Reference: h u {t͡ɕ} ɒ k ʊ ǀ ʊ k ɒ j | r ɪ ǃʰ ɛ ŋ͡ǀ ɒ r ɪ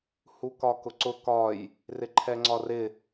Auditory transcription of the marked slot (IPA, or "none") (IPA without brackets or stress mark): k